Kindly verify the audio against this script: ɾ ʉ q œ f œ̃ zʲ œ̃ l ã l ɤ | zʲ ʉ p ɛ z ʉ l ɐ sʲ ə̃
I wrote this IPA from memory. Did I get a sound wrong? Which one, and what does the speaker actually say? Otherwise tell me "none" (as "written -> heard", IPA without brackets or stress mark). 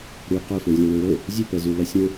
ã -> ə̃